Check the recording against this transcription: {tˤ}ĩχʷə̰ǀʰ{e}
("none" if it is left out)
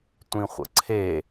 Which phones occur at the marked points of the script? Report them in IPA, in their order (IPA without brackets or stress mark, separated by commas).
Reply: tʷ, e